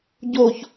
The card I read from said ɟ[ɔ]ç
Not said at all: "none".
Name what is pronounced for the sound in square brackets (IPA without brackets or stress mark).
o